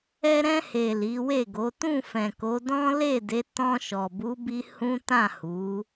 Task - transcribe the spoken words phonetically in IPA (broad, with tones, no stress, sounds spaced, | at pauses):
ɛ˧ ɾ ɛ̃˧ h e˨ l i˨˦ w e˦˨ ɡ o˨˦ t ũ˦˨ f ɛ̃˨ k o˨˦ d ɔ̃˦ l e˦˨ d e˨˦ t ɔ̃˧ ʃ ɔ˨ b u˨˦ b i˧ h ũ˦ t ã˦˨ h u˨˦